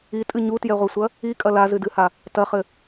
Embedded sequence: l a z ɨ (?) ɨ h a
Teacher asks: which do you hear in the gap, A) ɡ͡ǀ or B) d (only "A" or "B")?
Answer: B